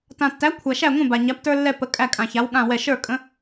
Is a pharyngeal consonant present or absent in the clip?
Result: absent